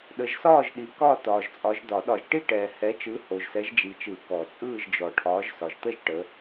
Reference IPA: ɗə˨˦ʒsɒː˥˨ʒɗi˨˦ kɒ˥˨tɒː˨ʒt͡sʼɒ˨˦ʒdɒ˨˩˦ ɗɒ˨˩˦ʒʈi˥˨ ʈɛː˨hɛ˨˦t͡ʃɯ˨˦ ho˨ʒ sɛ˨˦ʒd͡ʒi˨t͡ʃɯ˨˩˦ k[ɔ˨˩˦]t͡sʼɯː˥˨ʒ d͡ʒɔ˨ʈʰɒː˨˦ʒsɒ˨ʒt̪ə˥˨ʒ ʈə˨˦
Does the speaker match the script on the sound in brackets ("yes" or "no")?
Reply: yes